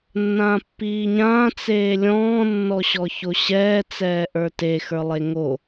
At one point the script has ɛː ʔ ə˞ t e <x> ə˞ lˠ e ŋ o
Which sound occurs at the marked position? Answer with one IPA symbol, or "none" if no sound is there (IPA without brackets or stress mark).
x